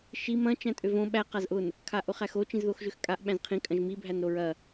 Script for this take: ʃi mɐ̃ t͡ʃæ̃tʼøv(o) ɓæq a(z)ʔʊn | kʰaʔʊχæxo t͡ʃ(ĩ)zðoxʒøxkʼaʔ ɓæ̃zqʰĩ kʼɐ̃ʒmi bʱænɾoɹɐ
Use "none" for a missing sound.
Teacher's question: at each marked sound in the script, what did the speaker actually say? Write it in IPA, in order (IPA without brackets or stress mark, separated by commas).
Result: õ, z, ĩ